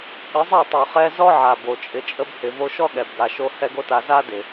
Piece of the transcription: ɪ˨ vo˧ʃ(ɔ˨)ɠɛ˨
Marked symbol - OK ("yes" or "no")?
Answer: no